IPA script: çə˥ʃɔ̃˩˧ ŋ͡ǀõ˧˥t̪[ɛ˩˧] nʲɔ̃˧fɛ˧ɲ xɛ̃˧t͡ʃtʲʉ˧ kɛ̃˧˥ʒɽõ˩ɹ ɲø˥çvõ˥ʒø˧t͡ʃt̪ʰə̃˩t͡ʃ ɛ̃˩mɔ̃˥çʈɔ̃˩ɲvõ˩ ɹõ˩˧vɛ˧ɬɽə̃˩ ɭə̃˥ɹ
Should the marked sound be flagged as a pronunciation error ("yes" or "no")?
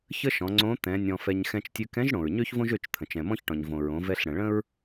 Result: yes